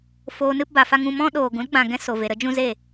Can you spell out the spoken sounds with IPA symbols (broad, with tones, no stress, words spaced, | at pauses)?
foː˧nɨ˦pba˨fa˦ ŋũ˧mɔ̃˦ ɗoː˨ɡũ˨˦lɡ͡bã˨ ɡɛ̃˦so˨ ve˨ɾə˦ d͡ʒũ˦ze˦˨